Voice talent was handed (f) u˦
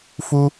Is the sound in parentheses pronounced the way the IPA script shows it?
yes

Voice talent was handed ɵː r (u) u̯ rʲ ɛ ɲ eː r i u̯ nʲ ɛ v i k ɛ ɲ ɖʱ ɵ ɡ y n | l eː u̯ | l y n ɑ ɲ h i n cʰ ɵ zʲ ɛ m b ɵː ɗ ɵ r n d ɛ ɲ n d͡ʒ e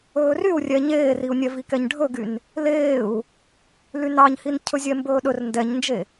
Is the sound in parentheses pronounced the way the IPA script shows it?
no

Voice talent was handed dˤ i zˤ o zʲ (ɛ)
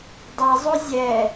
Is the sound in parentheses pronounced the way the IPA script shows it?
yes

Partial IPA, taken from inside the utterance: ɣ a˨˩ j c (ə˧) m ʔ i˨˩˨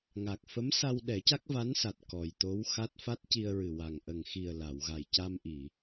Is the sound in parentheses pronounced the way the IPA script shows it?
no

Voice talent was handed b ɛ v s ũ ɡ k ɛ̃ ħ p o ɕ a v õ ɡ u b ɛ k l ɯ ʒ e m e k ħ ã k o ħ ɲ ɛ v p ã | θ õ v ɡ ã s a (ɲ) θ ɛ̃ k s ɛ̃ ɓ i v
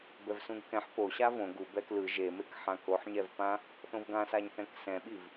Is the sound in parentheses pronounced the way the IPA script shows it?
yes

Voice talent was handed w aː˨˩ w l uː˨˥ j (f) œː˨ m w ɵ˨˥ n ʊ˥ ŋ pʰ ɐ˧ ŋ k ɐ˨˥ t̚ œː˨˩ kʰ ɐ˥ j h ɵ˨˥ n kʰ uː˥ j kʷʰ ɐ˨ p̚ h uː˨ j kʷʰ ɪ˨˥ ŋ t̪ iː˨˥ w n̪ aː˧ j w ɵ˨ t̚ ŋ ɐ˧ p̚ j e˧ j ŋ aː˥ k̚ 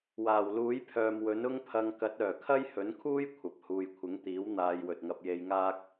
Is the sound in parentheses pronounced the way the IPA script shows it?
no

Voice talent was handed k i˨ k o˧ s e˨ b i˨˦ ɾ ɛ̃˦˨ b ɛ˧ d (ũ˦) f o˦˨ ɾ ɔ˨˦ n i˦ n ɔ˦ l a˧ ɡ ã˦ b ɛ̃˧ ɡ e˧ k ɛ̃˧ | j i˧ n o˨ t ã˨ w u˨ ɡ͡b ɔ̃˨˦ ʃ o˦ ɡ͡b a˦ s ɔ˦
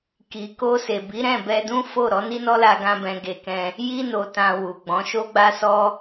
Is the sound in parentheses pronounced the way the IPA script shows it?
yes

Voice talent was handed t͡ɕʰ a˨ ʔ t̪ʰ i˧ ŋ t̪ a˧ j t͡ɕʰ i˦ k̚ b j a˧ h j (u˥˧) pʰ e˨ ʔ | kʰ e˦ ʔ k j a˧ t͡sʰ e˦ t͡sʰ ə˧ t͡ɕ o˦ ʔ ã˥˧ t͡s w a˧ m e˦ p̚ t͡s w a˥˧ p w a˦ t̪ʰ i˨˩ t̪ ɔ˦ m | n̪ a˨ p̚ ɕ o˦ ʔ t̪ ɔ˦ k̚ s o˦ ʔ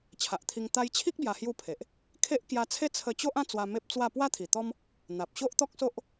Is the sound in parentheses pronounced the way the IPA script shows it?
yes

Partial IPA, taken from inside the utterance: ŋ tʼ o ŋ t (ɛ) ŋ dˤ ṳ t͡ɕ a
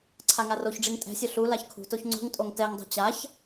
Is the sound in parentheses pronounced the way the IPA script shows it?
yes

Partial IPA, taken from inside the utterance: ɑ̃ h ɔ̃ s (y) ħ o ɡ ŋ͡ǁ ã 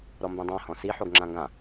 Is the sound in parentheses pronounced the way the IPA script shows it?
no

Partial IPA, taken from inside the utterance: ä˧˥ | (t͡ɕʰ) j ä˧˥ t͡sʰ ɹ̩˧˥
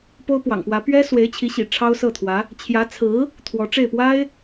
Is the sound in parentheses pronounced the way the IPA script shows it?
yes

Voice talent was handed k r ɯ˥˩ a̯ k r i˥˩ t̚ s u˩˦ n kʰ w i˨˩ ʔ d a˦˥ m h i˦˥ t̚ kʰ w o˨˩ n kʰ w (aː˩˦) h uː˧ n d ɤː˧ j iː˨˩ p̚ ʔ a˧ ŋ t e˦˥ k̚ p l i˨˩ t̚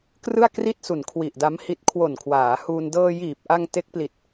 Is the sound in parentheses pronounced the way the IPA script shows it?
yes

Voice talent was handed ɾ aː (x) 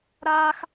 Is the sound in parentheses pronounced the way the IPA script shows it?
yes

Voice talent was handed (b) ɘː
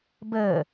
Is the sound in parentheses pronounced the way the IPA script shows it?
yes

